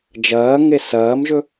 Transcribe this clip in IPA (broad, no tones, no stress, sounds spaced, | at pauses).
d͡ʒ ɐː ŋ e s ɐː m ʒ ɵ